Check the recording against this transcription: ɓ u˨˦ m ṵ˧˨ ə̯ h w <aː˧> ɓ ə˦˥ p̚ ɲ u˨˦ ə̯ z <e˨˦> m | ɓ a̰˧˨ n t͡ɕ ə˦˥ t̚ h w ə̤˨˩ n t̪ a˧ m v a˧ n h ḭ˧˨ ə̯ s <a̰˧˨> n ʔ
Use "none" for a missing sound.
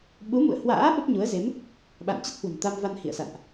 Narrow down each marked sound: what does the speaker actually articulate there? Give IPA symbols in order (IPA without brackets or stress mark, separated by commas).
a̰ː˧˥, e˨˦, a̰˧˨